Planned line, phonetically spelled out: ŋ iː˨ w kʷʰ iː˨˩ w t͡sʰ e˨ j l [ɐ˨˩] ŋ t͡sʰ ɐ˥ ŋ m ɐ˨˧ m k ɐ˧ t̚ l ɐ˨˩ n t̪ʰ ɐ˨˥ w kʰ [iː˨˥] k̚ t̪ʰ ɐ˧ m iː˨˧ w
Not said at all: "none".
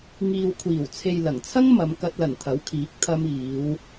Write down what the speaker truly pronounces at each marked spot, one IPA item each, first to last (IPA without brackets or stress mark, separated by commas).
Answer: ɐ˨˩, iː˨˥